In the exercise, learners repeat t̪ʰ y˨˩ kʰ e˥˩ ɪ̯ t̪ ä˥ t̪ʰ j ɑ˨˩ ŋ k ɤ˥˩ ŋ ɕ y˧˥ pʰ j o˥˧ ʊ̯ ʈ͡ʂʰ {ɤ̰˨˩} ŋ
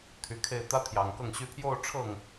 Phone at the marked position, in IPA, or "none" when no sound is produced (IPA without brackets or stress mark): ɤ˥˩